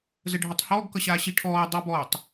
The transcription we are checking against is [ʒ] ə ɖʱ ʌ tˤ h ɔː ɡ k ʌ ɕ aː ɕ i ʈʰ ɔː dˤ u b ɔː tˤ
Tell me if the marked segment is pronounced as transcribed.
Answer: no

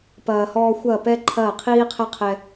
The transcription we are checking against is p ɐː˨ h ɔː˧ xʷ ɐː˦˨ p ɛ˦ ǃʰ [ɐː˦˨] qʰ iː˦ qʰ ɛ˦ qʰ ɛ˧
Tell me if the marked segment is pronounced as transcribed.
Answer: yes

